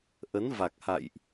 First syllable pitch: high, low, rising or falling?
rising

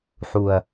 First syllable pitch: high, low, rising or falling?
low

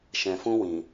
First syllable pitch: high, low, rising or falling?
low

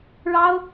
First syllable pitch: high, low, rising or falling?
high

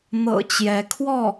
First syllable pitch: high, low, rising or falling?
low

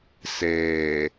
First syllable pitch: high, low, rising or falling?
low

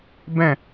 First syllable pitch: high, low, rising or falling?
falling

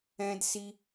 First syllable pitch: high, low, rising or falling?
high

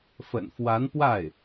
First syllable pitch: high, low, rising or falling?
low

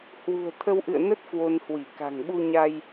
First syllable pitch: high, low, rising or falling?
low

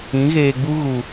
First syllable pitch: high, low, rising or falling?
rising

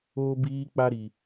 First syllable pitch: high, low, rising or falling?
high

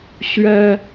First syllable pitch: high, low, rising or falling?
high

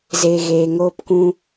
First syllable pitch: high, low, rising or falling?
high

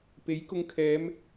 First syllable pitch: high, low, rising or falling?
rising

